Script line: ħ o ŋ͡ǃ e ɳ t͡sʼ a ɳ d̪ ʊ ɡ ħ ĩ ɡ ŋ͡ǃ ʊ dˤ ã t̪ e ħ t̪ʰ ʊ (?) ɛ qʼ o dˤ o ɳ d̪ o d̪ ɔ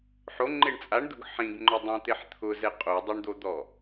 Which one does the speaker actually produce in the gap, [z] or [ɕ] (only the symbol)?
z